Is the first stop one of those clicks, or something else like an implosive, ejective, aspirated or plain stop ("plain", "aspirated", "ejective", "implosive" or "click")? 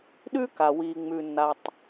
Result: implosive